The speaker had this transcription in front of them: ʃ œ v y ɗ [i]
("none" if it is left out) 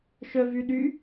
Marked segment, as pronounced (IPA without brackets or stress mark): y